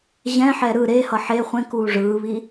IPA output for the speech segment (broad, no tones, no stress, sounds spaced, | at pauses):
ʑ ɛ̃ ħ ɛ ɾ ɯ ɾ e h ʌ ħ e χʷ ẽ k uː ʐ ɯː β i